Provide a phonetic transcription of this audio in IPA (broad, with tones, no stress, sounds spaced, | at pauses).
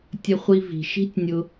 tʲ ə˧ χʷ i˧ v i̤˨ ʃ i̤˦ tʲ nʲ ʊ˧